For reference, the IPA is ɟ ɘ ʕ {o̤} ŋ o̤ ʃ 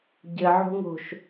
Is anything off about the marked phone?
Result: no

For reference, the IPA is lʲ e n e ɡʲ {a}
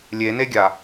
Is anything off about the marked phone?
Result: no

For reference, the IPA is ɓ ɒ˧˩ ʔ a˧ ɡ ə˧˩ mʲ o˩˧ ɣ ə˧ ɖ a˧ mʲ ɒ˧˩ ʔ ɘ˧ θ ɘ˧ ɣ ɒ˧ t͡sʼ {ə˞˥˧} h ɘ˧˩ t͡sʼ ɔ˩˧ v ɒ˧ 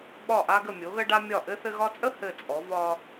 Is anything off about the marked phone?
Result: yes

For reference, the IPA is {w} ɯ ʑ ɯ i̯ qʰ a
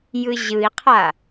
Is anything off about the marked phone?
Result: yes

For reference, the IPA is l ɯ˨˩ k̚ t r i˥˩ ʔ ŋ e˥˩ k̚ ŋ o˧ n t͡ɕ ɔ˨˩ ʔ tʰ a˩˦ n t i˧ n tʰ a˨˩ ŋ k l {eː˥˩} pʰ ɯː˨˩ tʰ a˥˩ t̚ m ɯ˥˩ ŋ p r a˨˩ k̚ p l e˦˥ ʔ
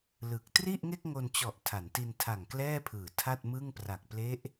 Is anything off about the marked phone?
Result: yes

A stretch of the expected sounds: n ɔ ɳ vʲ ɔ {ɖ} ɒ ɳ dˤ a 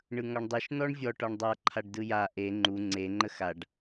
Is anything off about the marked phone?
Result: yes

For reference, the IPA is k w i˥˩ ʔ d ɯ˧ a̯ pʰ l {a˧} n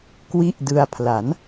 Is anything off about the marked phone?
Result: yes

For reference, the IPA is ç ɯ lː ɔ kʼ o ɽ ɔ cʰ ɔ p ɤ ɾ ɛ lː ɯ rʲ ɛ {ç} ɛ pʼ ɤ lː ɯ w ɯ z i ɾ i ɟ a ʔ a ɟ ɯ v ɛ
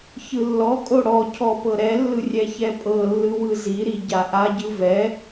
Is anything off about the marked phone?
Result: no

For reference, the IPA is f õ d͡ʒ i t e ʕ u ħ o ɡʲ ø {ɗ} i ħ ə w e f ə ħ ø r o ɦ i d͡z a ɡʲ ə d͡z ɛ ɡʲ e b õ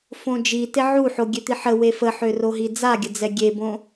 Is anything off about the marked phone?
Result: yes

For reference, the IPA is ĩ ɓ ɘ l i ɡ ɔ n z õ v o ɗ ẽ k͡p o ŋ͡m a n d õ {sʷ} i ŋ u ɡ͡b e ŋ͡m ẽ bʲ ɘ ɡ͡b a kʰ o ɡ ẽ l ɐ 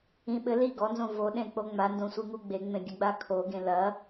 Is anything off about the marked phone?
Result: no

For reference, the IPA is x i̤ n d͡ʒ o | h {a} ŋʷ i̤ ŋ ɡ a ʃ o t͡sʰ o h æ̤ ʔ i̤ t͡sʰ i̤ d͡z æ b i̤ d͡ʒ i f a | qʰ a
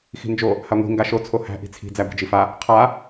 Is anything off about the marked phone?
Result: no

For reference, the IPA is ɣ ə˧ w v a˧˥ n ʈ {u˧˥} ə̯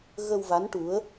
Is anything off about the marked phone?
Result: no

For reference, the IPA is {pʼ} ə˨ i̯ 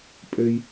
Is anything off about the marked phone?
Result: no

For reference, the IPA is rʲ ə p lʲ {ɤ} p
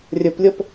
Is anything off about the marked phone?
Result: no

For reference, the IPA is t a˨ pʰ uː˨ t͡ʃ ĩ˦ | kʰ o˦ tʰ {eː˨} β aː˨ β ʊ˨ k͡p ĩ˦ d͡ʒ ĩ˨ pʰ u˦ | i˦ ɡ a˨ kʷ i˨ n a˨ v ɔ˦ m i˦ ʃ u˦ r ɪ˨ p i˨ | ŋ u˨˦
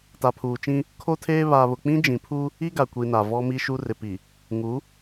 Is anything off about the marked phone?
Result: yes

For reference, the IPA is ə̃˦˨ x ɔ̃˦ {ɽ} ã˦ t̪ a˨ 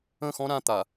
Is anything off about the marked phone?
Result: yes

